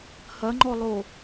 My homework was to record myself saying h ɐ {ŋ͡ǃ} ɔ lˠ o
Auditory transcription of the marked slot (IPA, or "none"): ŋ͡ǃ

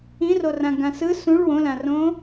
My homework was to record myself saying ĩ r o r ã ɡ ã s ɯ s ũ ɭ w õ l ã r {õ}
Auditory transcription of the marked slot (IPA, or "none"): õ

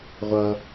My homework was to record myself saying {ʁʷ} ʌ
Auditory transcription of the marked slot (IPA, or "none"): ʁʷ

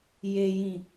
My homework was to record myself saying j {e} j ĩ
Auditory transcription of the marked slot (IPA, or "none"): e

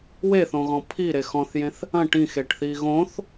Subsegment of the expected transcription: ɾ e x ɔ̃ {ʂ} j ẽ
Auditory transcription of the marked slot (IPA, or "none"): θ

